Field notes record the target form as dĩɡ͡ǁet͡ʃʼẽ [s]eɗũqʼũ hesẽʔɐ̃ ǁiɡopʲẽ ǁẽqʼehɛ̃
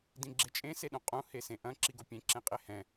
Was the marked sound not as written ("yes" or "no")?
no